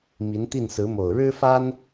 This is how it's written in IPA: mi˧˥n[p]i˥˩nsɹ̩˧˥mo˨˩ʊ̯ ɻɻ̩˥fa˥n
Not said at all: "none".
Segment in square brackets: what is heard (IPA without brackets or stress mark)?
t̪